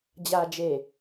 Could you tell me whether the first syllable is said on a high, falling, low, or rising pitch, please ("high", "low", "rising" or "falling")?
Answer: low